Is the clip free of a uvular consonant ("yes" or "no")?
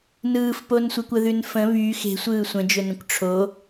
yes